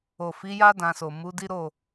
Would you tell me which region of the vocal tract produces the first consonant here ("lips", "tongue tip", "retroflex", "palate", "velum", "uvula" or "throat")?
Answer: lips